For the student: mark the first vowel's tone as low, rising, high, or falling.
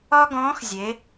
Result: high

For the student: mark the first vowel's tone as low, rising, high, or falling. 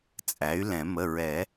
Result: rising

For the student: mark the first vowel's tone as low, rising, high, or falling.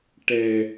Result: low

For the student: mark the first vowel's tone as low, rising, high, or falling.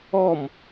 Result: falling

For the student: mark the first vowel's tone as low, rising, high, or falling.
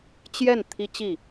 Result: falling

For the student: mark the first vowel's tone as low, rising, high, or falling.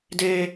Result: high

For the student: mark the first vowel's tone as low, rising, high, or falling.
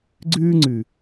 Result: high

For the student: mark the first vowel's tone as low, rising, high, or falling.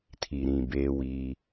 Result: low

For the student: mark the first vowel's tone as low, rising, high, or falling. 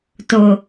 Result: low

